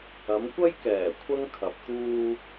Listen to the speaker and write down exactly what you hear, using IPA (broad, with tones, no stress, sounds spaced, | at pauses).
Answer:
ɐ˨˧ m kʷ ɐ˥ j k ɛː˨˩ kʷʰ ɐ˥ ŋ kʰ ɐ˨ p̚ t̪ uː˧